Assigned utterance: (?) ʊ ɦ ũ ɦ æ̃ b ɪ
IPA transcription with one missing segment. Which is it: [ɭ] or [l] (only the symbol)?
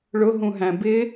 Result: ɭ